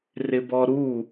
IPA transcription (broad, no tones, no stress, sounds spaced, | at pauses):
r ɪ b ɔ ɾ u